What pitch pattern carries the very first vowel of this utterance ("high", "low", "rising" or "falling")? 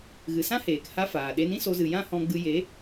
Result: low